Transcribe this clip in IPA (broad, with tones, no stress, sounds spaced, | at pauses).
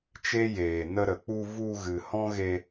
t͡ʃ e˦ j eː˨ n ə˧ ɾ ə˨ k͡p u˧ v u˧ ɣ ɨ˨ h ɔ̃˦ ɣ e˧